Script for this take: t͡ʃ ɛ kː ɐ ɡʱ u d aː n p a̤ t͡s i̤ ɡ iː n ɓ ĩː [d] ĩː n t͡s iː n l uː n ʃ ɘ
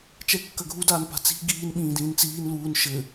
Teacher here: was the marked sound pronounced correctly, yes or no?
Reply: yes